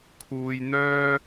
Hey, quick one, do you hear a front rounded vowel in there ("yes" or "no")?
yes